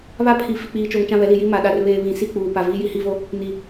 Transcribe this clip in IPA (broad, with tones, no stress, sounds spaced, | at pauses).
β a˦ pʰ i˨ f i˨ k͡p iː˨ t͡ʃ oː˨ ŋ t͡ʃ ã˦˨ β ɛ˨˦ l i˨ j i˦ m a˨ ɗ a˨ r β eː˨ β ĩ˨ s i˦˨ k͡p uː˨ p a˨ v iː˦ j i˦ h iː˦ v o˦ | n i˨